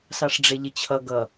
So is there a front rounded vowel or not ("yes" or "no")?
no